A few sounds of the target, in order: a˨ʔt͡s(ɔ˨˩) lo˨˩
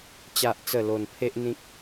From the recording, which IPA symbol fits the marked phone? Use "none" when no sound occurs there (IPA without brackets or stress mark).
ə˨˩